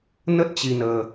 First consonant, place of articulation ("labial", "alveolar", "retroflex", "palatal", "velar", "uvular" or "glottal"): alveolar